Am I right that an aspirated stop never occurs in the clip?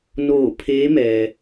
no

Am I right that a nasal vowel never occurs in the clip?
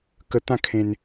no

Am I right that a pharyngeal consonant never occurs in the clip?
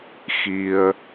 yes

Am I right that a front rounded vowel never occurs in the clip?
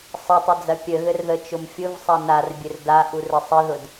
yes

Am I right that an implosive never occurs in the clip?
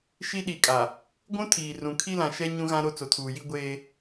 no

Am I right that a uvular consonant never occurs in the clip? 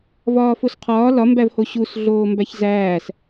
no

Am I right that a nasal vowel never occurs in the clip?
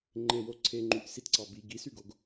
yes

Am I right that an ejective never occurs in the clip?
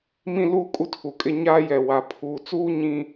no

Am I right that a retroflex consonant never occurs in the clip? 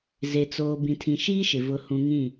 yes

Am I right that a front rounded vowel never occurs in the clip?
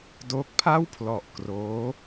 yes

